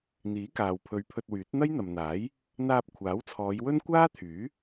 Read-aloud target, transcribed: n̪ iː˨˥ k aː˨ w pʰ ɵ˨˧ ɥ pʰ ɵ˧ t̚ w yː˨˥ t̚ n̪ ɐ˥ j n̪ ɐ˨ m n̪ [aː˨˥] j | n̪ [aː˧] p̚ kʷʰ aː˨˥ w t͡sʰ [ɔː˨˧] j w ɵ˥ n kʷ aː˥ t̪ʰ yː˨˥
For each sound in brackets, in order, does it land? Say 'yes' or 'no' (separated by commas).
yes, yes, yes